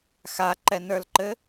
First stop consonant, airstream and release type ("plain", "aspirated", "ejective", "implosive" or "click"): click